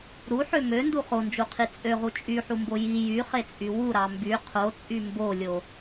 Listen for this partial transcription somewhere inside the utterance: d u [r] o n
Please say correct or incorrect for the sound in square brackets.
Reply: incorrect